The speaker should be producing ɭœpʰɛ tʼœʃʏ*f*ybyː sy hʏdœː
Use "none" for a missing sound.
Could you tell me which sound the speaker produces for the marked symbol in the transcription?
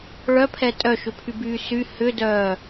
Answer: pʰ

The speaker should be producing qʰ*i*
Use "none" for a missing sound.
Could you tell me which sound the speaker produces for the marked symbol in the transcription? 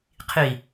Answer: i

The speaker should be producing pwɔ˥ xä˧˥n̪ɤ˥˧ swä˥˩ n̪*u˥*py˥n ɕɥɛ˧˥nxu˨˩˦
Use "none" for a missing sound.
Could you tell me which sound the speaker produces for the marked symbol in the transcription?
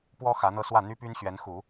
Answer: y˥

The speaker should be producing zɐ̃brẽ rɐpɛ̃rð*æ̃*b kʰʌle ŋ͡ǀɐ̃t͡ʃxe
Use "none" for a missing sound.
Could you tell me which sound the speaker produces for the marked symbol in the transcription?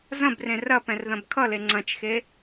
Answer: ɐ̃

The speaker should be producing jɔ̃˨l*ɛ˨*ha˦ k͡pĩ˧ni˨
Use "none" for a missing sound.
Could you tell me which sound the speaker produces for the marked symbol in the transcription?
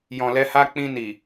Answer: ɛ˧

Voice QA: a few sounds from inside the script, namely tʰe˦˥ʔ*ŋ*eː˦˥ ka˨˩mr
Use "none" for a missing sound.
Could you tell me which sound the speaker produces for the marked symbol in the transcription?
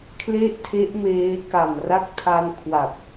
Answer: m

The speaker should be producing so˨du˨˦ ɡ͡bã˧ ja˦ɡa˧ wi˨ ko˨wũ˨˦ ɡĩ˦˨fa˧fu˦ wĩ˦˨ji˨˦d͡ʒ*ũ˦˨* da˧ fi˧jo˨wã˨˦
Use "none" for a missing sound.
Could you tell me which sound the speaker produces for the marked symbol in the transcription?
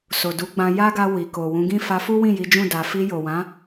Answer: ũ˦˨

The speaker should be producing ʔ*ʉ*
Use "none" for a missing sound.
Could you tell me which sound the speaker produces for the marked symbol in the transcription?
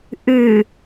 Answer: ʉ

